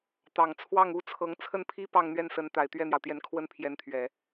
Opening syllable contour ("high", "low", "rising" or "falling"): low